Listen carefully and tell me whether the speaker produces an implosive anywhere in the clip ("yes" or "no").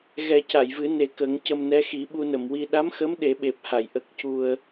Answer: yes